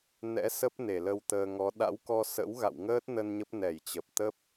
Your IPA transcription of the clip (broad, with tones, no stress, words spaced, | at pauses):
nɛ̰˧˥sə˦˥p̚ ne˧˩lə˧wt̪əː˧ ŋɔ˨˦ ɗa̰˧˥wkɔ˧sə̰˧˥w ɣa̰˧˨wŋəː˦˥t̚nə˧n ɲə˦˥p̚ nɛ˧˩jt͡ɕə˨˩p̚ t̪ə˦˥p̚